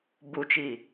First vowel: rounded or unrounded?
rounded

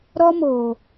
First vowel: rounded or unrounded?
rounded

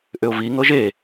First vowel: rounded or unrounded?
rounded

